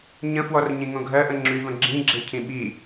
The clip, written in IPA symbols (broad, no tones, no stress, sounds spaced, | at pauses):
ɲ ə̃ f w ɔ r ɲ ĩ ŋ õ ɡʱ ɜ ʔ ə̃ ŋ͡ǁ y v ə̃ ɡ͡ǁ ĩ ɡ͡ǁ e cʰ ĩ ɓ i